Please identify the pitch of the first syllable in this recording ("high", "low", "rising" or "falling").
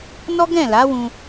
high